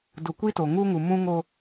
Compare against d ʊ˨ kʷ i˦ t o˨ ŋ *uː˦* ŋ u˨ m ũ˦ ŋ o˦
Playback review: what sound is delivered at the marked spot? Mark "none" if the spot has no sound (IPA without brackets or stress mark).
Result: uː˦